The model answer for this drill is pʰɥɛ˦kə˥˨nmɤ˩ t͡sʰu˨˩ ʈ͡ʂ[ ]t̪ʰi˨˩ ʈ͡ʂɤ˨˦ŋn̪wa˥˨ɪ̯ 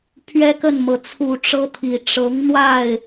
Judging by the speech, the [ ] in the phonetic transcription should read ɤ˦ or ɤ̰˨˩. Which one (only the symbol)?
ɤ˦